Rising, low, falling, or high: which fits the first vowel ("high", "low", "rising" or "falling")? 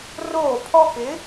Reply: falling